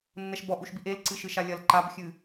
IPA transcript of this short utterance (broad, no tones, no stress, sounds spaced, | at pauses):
nː ɛ ʃ b ɔ ʔ u ʃ b i ʔ e l ǀ ɨ ʃ ɨ ʃ a lʲ ɐ l ǃ a b xʲ ɨ